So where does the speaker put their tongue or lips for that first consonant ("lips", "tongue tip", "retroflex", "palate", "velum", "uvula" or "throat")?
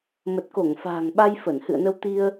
lips